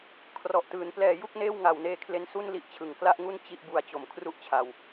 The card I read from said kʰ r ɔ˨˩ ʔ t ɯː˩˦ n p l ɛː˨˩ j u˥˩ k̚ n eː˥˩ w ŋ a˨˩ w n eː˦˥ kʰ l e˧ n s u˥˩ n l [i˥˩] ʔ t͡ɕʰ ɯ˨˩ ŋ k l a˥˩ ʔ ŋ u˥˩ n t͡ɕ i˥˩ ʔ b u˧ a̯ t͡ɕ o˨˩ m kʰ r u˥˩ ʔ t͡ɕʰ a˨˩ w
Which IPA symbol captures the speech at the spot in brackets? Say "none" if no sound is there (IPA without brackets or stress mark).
i˦˥